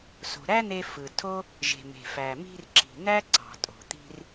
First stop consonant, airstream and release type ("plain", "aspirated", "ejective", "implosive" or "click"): aspirated